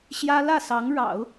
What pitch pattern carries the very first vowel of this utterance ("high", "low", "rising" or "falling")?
high